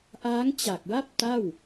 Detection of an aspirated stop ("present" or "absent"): absent